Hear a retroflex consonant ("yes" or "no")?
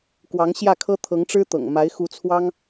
yes